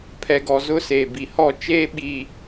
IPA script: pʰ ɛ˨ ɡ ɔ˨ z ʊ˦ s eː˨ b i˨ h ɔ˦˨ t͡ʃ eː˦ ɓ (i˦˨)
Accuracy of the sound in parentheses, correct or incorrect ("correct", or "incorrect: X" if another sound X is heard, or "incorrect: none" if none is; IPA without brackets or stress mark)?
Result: incorrect: i˨